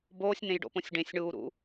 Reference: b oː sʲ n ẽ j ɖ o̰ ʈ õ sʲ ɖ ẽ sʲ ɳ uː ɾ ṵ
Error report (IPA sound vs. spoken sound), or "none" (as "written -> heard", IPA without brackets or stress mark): ʈ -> p